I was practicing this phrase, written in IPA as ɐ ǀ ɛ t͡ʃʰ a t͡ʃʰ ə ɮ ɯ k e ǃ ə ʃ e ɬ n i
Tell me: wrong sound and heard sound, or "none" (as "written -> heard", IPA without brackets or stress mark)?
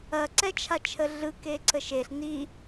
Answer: ǃ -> ǀ